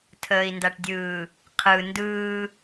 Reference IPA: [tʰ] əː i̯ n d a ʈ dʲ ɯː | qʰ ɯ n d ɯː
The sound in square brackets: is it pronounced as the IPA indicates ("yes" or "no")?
yes